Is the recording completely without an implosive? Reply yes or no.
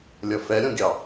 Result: yes